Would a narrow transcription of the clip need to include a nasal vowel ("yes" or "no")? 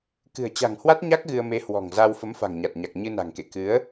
no